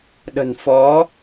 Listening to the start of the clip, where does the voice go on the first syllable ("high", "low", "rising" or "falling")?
low